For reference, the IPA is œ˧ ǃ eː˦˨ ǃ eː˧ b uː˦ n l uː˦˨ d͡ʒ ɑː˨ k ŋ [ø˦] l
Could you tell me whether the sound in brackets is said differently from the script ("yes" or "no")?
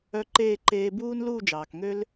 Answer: no